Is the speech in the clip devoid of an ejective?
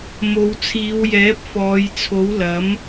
yes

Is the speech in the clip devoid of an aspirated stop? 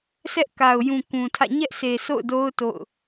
no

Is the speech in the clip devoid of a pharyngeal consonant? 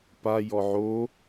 no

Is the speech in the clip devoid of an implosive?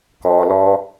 yes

